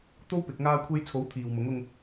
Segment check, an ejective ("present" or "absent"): absent